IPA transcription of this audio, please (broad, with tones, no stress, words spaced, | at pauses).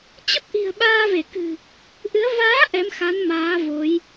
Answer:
t͡ɕə˦˥p̚ʔi̤˨˩ə̯ ɓaː˧ve˧˩kɨ̤˨˩ | ʔɨ˨˦ə̯ vaː˨˦ ʔɛ˨˦mxa˨˦n maː˨˦vo˨˦j